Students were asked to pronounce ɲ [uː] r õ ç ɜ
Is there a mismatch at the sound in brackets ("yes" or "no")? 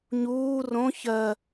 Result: no